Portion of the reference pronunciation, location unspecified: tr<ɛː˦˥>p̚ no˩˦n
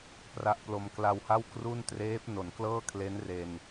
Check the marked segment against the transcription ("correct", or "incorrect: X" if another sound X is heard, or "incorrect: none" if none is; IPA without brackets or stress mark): incorrect: eː˦˥